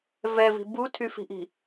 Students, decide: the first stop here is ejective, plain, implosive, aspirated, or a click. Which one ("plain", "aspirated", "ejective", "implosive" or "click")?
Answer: plain